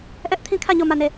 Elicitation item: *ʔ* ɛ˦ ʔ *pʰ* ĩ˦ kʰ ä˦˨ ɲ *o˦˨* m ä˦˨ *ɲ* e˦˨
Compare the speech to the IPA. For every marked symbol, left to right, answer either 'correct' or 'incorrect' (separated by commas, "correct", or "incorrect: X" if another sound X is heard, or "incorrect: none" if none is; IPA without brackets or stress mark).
correct, incorrect: tʰ, correct, incorrect: n